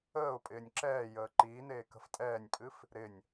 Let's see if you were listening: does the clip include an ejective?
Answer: yes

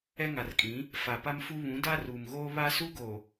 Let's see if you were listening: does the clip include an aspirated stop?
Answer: no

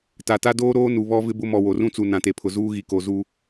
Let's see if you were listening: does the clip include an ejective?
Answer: no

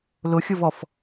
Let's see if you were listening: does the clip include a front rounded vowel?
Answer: no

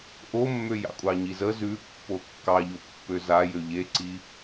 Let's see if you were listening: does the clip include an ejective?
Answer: yes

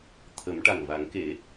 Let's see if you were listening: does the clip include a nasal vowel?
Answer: no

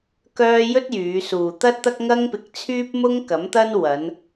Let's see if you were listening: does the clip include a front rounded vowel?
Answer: yes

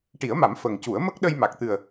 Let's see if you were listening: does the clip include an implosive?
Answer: yes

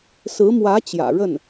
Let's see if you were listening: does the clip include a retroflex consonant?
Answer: yes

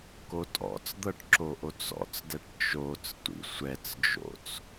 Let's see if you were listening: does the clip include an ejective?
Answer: yes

